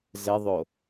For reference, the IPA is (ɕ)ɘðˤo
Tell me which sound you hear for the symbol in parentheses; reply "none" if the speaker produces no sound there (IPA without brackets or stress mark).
z